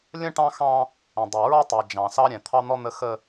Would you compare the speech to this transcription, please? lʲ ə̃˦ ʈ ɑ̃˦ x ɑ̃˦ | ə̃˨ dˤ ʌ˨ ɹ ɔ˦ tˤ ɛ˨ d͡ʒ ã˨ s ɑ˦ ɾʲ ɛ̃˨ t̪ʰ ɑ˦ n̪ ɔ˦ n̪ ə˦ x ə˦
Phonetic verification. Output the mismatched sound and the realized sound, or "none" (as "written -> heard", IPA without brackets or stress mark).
ã˨ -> ɑ̃˨